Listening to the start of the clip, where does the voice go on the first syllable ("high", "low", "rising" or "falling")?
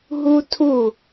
high